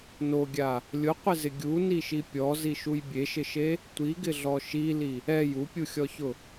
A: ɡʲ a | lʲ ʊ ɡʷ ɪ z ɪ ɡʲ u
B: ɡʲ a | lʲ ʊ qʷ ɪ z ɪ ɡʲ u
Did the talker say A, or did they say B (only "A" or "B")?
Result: B